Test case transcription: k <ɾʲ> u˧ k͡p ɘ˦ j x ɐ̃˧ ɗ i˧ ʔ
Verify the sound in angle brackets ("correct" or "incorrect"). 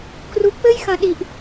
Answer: incorrect